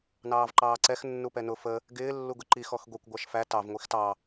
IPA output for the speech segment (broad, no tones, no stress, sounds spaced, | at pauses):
n ɑː v ǃ ɑː ǀ ɛ x nː u p ɛ n ʊ f ə | ɡ ɪː lː u ɡ ʊ ǃ i x ɔ x ɡʷ i kʷ ɡʷ ɑ ʃ f æ t ɑ v ŋʷ i x t ɑ